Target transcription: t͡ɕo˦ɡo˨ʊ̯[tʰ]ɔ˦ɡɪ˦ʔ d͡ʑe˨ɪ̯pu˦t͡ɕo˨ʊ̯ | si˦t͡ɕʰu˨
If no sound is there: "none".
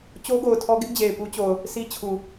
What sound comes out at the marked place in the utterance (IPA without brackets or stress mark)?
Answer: tʰ